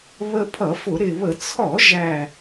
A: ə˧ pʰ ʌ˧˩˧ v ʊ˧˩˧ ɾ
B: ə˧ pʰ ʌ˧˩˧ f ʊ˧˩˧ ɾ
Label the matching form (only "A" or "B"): B